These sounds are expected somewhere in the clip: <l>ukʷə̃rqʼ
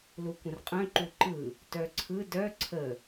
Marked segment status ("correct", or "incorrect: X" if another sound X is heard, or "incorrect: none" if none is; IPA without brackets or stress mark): correct